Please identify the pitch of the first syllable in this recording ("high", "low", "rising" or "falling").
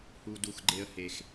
low